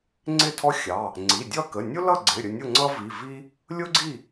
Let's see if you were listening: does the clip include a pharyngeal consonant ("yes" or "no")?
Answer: no